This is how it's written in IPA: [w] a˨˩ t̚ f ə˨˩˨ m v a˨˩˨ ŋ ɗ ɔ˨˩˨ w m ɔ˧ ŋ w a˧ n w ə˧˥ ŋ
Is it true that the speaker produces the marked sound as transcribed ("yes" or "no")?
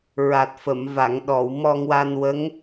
no